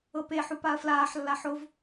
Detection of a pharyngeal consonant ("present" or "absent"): present